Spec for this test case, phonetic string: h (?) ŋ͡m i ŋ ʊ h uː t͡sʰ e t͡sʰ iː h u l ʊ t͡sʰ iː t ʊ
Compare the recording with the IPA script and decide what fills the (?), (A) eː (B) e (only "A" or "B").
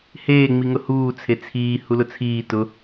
A